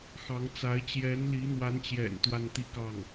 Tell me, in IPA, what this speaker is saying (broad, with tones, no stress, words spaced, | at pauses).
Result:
xɑ˧˥ŋt͡sa˧˥ɪ̯ t͡ɕjɛ˧˥nli˧˥n̪wa˧˥nt͡ɕjɛ̰˨˩n t̪wa˥˧nt̪i˥˧kɑ˥˩ŋ